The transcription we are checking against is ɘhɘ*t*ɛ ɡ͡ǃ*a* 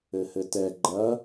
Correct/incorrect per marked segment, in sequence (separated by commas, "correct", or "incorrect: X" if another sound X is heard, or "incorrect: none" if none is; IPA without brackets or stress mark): correct, incorrect: ɐ